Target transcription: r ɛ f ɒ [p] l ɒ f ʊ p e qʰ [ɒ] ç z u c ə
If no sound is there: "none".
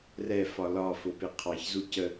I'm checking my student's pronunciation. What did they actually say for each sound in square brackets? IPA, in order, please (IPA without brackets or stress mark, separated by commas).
none, ɑ